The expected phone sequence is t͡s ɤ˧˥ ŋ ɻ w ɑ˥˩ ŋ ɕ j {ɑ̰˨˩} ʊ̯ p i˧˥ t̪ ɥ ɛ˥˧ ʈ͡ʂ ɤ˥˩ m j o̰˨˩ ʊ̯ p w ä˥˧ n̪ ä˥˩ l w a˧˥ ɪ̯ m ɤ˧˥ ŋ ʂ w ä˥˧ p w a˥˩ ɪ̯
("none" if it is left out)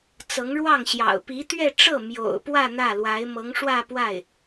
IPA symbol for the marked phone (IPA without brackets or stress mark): ɑ̰˨˩